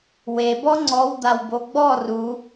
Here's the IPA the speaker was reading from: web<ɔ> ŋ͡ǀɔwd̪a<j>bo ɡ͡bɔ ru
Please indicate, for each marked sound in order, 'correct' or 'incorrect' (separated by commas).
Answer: correct, incorrect